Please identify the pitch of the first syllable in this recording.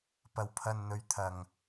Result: low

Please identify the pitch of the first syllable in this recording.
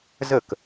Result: falling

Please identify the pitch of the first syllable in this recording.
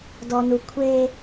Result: low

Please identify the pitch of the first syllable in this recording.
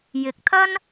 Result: rising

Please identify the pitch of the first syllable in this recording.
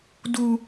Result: high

